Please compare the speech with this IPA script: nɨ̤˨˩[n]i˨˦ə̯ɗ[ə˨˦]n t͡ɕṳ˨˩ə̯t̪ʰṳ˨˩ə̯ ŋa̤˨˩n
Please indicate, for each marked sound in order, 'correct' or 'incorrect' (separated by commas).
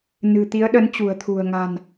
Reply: incorrect, correct